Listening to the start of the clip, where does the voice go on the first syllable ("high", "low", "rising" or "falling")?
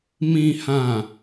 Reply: low